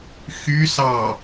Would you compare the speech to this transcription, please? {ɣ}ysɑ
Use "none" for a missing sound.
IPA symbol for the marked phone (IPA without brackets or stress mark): x